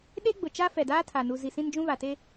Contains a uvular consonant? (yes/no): no